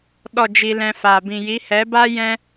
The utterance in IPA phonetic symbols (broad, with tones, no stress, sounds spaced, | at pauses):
ɗ ɔ˦˨ d͡ʒ i˧ l ɛ̃˧ f aː˨ b ĩ˨ j i˨˦ h ɛ˨˦ b aː˦ j ɛ̃˦